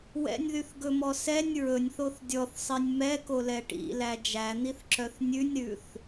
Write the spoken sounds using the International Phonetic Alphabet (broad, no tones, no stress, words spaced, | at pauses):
wɛ̰nʲðyθɡɵmɔ sɛnʲ ɹɵnʲθoθ dʲɔθsˤinʲ mɛkolɛ ʈḭlæ d͡ʒæn̪iθǁœθ nʲʉnʲɾʉθ